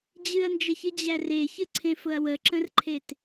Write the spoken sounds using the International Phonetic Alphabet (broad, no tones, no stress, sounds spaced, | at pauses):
d͡ʑ ɨ ɐ̯ n d͡ʒ ə ç ɨ d͡ʑ æ r e ç ɨ ǀʰ ẽ f ʊ ɐ̯ w ə ǁ ə̃ r ǃʰ e t